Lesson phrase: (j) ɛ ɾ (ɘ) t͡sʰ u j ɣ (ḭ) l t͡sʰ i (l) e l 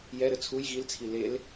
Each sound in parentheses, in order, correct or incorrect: correct, correct, incorrect: i, correct

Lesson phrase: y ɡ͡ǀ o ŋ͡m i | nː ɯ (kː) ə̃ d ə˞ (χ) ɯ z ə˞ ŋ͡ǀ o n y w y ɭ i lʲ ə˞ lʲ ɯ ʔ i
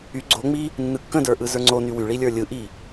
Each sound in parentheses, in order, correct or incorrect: correct, incorrect: ʔ

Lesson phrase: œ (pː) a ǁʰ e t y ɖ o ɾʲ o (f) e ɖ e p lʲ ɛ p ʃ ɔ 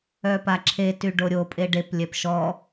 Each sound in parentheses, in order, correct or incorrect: incorrect: p, incorrect: pʼ

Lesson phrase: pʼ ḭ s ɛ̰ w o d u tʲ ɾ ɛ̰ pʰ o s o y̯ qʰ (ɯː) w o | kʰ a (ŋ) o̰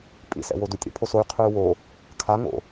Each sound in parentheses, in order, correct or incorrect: correct, correct

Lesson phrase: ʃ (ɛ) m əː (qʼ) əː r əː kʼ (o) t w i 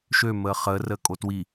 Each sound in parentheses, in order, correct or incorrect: incorrect: ø, incorrect: χ, correct

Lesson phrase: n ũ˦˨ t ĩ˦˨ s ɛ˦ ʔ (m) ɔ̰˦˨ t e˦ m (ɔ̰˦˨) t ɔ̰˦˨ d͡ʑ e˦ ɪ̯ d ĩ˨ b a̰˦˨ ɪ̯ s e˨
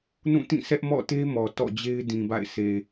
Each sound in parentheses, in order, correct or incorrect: correct, incorrect: ɔ˨

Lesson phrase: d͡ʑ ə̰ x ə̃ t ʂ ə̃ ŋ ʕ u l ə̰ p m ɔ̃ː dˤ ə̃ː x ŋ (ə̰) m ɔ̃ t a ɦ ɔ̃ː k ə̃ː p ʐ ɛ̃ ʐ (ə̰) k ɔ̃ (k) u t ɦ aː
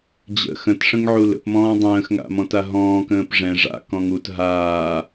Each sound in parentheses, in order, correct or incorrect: incorrect: a̰, incorrect: a̰, incorrect: ŋ

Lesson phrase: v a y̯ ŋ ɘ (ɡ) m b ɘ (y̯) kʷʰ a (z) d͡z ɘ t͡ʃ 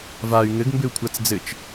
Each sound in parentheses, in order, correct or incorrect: correct, incorrect: u̯, incorrect: t͡s

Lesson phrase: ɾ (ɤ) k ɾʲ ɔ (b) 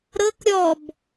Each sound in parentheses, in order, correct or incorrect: correct, correct

